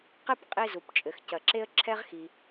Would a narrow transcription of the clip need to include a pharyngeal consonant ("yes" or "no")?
no